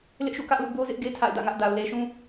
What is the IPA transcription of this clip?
l ɪ˦ ʔ ʃ ṵ˦˨ k ä˦ ʔ l ṵ˦˨ b o˦ z ɪ˦ ʔ ɡ e˦ tʰ a̰˦˨ ɪ̯ d ä̰˦˨ ŋ ä˦ ʔ d a˨ ʊ̯ l e˨ ʃ ũ˦

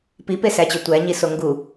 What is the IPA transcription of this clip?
p i p e s æ t͡ɕ ø tʷ æ ɲ i s o ŋ ɡ u

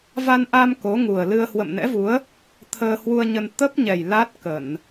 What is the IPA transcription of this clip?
v a˧ n ʔ a˧ m k o˨˦ ŋ u˨˩ ə̯ l ɨ˧ ə̯ h w ə̰˧˨ m n ɛ̰˧˥ v u˨˦ ə̯ | t̪ʰ əː˧ h w u˧ ə̯ ɲ ə˧ n t̪ ə˦˥ p̚ ɲ ɛ˨˩ j l a˦˥ t̚ k ə˧˩˨ n

